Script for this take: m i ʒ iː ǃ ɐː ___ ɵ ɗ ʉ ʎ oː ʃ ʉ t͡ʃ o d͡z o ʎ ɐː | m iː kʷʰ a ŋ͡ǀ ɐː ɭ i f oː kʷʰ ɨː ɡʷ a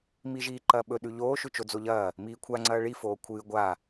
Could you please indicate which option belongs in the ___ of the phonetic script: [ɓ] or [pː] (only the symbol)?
ɓ